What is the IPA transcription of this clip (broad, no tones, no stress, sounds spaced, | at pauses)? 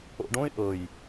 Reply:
o̰ ɖ õ ɪ̯ ʔ ɤ j